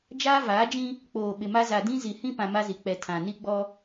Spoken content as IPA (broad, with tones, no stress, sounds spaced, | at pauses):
d͡ʒ aː˦ v aː˨˦ d͡ʒ ĩ˦ | k͡p oː˨ ɓ ɪ˨ m a˦ z a˨ d ĩ˦ z i˨ h ĩ˦ p ã˨ m a˦ z i˨ k͡p ɛ˨ tʰ ã˨ n i˦ ɡ͡b ɔ˦